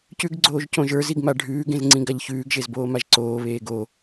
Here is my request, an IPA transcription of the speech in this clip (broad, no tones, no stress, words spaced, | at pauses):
cʉɡɡ͡ǀoːʒ cõʒə˞ziɡ maɖʱʉːɡẽz ŋ͡ǀĩɡaʎçʉːɡʒez boːmaʒǀoːβeː ɡo